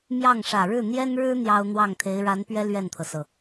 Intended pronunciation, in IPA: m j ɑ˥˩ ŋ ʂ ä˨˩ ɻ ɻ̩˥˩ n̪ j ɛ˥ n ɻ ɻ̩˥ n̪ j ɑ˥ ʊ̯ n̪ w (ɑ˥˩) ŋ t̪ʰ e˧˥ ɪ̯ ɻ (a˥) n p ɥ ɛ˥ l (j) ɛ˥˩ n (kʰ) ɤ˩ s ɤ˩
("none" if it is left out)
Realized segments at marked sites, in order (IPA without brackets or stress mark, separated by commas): ɑ˥˩, a˧˥, ɥ, t̪ʰ